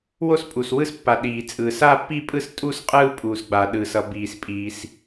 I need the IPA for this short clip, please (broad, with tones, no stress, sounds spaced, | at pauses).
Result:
w o˥˧ s pʼ u˩ s w ɯ˥˧ s pː a˩ ɗ iː˩ t͡sʼ ɯ˩ s aː˥˧ pː i˥˧ pʼ ɯ˥˧ s tʼ u˥˧ s qʼ ɯː˥˧ pʼ uː˩ s ɡ͡b a˩ ɗ ɯː˩ s ʌ˩ b iː˩ s pʼ iː˩ s